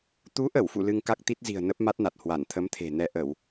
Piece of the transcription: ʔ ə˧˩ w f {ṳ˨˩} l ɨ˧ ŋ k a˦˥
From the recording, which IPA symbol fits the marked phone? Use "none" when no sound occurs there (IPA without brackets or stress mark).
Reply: ṵ˧˨